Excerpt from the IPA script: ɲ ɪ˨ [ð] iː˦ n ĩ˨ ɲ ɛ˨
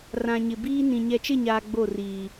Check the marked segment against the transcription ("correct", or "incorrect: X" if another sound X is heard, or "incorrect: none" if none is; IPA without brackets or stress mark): incorrect: b